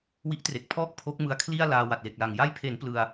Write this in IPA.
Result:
w i˦˥ ʔ t r e˨˩ k̚ pʰ ɔː˥˩ k̚ pʰ o˦˥ k̚ m ɯ˦˥ a̯ kʰ l i˥˩ a̯ l aː˧ w a˨˩ t̚ l e˨˩ k̚ l a˨˩ ŋ j a˧ j pʰ e˩˦ n p l ɯ˧ a̯

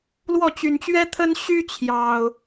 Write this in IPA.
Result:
l w ɔ˥˨ t͡ɕ y˨˩ n t͡ɕ ɥ ɛ˦ t̪ʰ ə˦ n ɕ y˦ t͡ɕʰ j ɑ˨˩ ʊ̯

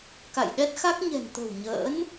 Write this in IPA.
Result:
k a̰˧˨ j ɗ ɛ˦˥ t̚ x a˦˥ k̚ ɲ ɛ̤˨˩ n t̪ ə̤˨˩ w ɲ ə̰ː˧˥ n

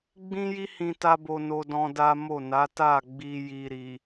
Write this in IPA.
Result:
ɡ͡b ĩ˦ j i˦ h ĩ˧ t a˧ b o˧ n o˧ d ɔ̃˧ d a˦ m o˦˨ n a˨˦ t a˦˨ ɡ͡b i˧ j i˨ ɾ i˨

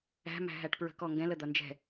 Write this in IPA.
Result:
æ̤ m æ̤ ɦ æ ʈ p ɹ ə̤ k ɔ ŋ ɡ ɛ̃ l ə d̪ ʌ n d͡ʒ ɛ̤

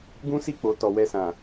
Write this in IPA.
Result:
ɡ ũ˦ s i˦˨ k͡p o˨ t ɔ˨ w ɛ˧ s ã˨

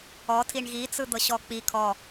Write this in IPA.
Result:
ɔ tʰ i ɳ ɣ i t͡s ɯ d̪ ɤ ɕ ɔ k͡p i kʰ ɔ

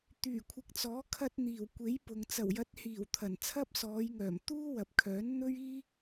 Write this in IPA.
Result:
t̪ yː˨˩ kʷʰ ɪ˨˥ k̚ t͡s ɔː˨˥ kʰ ɐ˧ t̚ n̪ iː˨˩ w kʷ e˨˥ j p ʊ˨ ŋ t͡s ɐ˨˩ w j ɐ˨˥ t̚ h iː˨˩ w t̪ʰ ɐ˨˩ n t͡sʰ ɐ˥ p̚ s ɔː˨˧ j ŋ œː˨˩ m t̪ uː˥ w ɐ˨˥ p̚ kʰ œː˨˥ n n̪ ɵ˥ ɥ iː˥

